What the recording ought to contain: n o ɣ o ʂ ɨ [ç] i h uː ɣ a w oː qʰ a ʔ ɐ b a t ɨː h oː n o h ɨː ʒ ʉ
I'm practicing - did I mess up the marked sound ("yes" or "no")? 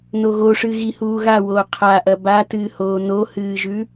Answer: yes